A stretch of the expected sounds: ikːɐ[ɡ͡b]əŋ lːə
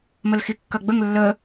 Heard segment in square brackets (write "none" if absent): ɡ͡b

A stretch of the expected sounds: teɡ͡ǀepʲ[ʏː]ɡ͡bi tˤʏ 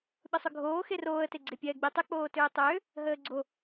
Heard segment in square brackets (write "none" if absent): ɛː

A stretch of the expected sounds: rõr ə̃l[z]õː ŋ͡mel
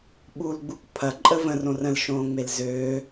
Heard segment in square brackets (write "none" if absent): ʃ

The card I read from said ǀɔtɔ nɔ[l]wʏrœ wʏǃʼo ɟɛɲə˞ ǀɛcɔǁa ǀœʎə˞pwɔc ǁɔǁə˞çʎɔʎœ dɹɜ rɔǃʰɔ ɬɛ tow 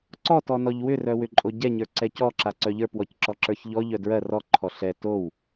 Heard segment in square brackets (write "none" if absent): ʎ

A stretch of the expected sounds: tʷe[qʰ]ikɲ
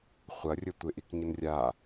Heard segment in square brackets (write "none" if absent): ʔ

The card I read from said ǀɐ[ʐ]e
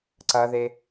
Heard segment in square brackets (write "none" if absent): ð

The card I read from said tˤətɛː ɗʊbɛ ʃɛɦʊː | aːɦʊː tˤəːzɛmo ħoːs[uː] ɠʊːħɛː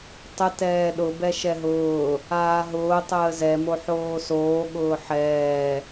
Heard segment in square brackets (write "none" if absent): oː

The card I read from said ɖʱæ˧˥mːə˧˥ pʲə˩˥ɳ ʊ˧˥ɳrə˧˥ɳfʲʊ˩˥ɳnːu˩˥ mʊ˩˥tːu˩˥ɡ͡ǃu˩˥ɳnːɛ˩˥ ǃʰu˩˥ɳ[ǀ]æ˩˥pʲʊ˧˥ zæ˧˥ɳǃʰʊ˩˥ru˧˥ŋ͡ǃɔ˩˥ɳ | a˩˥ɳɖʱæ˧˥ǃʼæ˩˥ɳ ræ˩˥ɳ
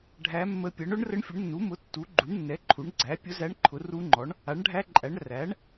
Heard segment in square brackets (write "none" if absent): ɡ͡ǀ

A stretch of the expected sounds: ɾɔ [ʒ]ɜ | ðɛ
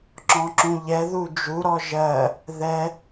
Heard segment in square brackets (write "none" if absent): ʒ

